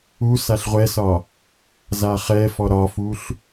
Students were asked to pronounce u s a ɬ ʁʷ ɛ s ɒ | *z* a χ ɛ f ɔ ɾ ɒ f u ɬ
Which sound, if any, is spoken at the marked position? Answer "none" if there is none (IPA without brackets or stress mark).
z